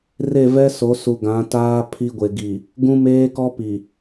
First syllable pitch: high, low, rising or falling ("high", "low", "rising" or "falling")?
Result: falling